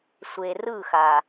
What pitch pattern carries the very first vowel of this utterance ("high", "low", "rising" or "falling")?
low